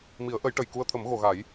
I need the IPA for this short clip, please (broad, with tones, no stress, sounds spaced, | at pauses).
m i˨˩˦ ə̯ ʔ ə˨˩˦ j ʈ ə˨˩˨ j k u˧ ə̯ t̪ʰ ə˨˩˦ m ɣ o˨˩˨ ɣ a˨˩˦ j